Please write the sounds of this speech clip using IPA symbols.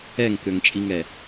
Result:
ɛŋkøŋt͡ʃʼiŋɛ

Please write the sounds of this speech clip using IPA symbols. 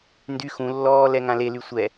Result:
ndy xũlːɔː lɛŋãlely sʷɛ

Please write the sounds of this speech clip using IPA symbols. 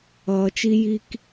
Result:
ʌː˨t͡ʃi˦ ji˦k

